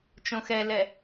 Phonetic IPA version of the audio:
t͡ʃ õ x ɛ l ɛ

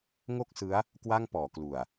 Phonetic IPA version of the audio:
ŋ o˥˩ k̚ s ɯ˦˥ a̯ | k w a˥˩ ŋ p ɔː˩˦ k l u˨˩ a̯

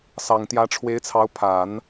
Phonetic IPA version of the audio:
s ɑ˨˩ ŋ t̪ j ä˧˥ ʈ͡ʂʰ w e˧˥ ɪ̯ t͡sʰ ɑ˧˥ ʊ̯ pʰ a˨˩˦ n

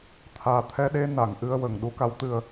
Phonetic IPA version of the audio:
t̪ʰ aː˨˩ t̪ʰ ɛ˧ ɗ e˧ n a˨˩˨ ŋ ʔ ɨ˧ ə̯ w ə˨˩˨ ŋ ɗ u˧˥ k a˧˥ w t̪ ɨ˧ ə̯

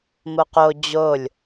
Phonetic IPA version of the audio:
m o q o d͡ʑ o lʲ

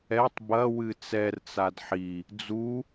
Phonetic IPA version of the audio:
ɛ tˤ b ɐ w ɨ t͡s ɛ r t͡s a d ħ i | d͡z u

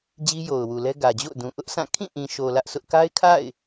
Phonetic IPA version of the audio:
d͡ʑ i˦ j o˨ ʊ̯ w u˨ l ɛ˦ ɡ ä˨ d͡ʑ o̰˦˨ ʊ̯ d ũ˨ ʔ ʊ˦ ʔ sʰ ã˦˨ kʰ ĩ˦˨ ʔ ĩ˨ ʃ o˨ l ä˦ ʔ sʰ ʊ˦ ʔ k a˦ ɪ̯ kʰ a̰˦˨ ɪ̯

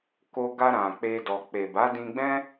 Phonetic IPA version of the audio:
k o˧ ɡ a˧ ɾ ã˨ k͡p e˧ d ɔ˨ k͡p e˨ b a˨˦ d ĩ˧ ɡ͡b ɛ̃˦

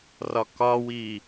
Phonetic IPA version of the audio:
r ɒ k ɒ w i

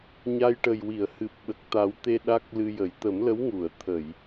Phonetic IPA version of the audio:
ɲ a˧ j ʈ ə˨˩ j w i˨˩˨ ə̯ h ɨ˨˩ p̚ ɓ ə˨˩ k̚ t̪ a˨˩˦ w t̪ e˧ ɗ a˦˥ k̚ l ɨ˧ j ə˨˩˦ j t̪ ə˨˩˦ m l ə˧˥ w ŋ u˨˩˨ ə̯ t̪ʰ ə˨˩˨ j

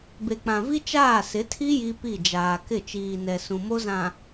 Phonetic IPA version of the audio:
b e˨ k͡p ã˨ v i˦ t͡ʃ aː˦˨ s ɪ˨˦ tʰ i˦ j i˦ p i˦˨ d͡ʒ aː˨ k ɪ˦˨ t͡ʃ iː˨ n ɛ˨ s ũ˨ m o˦ z ã˨

